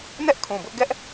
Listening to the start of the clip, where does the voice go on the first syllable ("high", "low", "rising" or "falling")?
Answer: high